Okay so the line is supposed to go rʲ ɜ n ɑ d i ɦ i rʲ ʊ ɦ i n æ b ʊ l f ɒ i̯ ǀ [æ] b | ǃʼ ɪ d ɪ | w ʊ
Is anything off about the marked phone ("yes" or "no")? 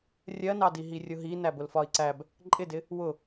no